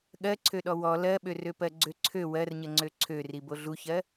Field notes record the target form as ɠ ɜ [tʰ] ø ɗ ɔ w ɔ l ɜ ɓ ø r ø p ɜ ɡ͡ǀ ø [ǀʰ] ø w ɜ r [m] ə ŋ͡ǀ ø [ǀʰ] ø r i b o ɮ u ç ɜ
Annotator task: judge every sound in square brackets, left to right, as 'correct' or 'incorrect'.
incorrect: ǀʰ, correct, incorrect: ɲ, correct

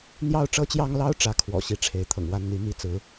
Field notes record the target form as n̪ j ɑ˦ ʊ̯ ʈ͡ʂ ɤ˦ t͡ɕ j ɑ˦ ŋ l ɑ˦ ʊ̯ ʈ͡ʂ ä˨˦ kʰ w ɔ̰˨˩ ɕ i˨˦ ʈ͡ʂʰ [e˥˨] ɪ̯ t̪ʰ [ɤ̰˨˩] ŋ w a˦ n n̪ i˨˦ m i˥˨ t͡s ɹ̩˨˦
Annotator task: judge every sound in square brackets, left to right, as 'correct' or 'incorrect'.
incorrect: e˨˦, correct

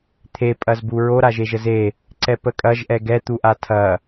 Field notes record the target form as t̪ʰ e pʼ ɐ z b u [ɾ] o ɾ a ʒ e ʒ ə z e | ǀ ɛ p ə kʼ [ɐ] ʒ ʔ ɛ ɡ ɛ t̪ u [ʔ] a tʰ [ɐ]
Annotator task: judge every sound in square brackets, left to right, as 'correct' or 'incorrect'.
incorrect: ɹ, correct, correct, correct

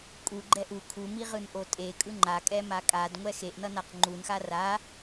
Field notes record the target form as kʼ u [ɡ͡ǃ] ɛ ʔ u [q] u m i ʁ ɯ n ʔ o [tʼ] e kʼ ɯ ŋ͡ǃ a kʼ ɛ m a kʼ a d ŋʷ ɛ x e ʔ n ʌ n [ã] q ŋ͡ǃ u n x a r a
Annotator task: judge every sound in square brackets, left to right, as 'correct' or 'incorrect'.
correct, incorrect: kʰ, correct, incorrect: a

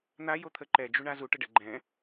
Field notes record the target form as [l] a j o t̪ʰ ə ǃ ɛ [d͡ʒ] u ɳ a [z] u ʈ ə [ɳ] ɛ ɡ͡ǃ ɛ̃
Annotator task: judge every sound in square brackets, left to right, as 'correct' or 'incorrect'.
incorrect: n̪, correct, correct, incorrect: ɖ

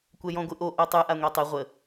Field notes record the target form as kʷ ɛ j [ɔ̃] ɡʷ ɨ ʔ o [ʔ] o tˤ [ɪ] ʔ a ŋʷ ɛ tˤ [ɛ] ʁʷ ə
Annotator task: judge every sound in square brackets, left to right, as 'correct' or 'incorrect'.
correct, correct, incorrect: ɨ, incorrect: ɨ

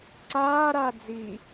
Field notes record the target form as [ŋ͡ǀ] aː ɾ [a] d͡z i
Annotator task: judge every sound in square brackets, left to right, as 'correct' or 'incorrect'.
incorrect: ǀ, correct

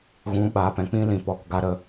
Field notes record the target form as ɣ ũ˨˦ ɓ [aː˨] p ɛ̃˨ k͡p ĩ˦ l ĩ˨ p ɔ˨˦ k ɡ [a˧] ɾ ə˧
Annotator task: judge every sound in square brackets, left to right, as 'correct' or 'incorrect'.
correct, correct

